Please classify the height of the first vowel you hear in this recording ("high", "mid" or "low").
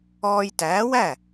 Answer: mid